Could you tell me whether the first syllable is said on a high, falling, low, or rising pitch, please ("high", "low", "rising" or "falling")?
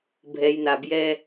low